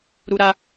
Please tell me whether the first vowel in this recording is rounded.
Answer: yes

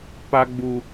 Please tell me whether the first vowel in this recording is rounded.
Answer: no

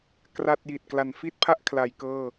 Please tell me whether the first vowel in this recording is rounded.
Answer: no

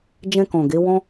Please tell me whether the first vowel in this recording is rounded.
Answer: no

